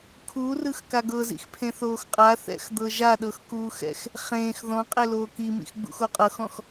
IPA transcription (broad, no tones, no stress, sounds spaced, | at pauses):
kʰ u r ɯ x k a ɡ ɤ z ḭ x pʰ ẽ θ oː x qʼ a θ ɛ̰ x d̪ ɤ ʒ a ɗ ɤ x k uː x ɛ̰ x | χ ẽː x ð ɔ̃ qʼ e l oː k i m ḭ x ɡ͡b ṵ x o qʼ ɤ x ɔ̃ x